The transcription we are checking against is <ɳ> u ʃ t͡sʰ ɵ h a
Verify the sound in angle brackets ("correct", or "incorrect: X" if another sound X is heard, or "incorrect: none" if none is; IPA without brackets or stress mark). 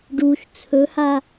incorrect: ɖ